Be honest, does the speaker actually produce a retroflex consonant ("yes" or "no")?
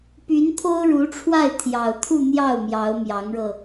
yes